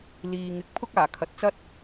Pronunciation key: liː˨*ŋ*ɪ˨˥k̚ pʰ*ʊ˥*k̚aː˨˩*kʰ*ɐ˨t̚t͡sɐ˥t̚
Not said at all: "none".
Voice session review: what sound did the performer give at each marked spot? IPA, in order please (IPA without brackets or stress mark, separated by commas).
ŋ, ʊ˥, kʰ